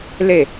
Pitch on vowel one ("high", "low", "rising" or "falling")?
falling